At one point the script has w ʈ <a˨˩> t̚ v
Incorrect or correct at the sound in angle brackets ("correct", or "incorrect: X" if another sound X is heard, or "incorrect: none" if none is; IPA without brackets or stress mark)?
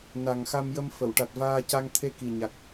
correct